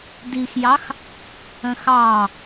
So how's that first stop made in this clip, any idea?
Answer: plain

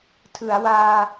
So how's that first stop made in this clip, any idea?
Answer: aspirated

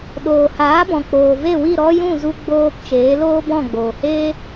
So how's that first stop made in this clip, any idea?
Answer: implosive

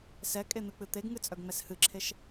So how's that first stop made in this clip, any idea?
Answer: ejective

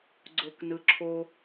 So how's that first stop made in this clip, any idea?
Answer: click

